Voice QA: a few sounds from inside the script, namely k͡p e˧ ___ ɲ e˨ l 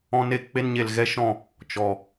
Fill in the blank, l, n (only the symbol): n